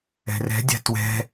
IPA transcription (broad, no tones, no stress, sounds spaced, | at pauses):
ɛ̤ r ɛ̤ dʲ a̤ t w ɛ̤